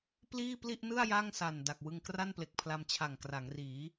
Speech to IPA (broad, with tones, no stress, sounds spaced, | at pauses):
p l iː˥˩ p l i˥˩ ʔ n ɯ˥˩ a̯ j a˥˩ ŋ s a˨˩ n d a˨˩ k̚ w ɯ˧ ŋ k r a˥˩ n p l e˨˩ k̚ pʰ l a˧ m t͡ɕʰ a˨˩ ŋ k r a˩˦ ŋ r iː˩˦